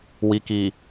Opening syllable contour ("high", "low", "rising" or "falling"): low